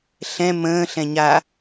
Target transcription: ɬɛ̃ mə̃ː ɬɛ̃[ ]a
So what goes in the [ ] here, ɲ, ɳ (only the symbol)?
ɲ